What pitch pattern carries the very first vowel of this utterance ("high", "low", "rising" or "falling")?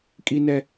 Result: high